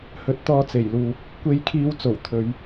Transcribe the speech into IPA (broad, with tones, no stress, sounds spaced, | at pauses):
h ɵ˨˥ t̚ t̪ ɔː˧ t͡s e˨˩ j l uː˨ p̚ | kʷ e˧ j kʰ iː˧ w t͡s o˨˩ w t̪ʰ ɵ˨˧ ɥ